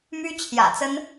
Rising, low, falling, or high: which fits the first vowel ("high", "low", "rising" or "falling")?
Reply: high